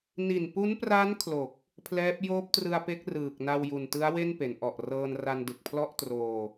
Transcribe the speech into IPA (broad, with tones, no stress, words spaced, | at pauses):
ni˨˩npu˦˥npra˦˥n kʰlo˨˩k̚ | pʰlɛː˦˥p̚ joː˦˥p̚trɯ˧a̯pe˦˥k̚ rɯː˨˩k̚ na˧wju˨˩ntɯ˦˥a̯we˥˩n pe˩˦nʔɔ˨˩ʔrɤː˧nra˧n dɯ˨˩k̚pʰlɔ˥˩ʔtroː˧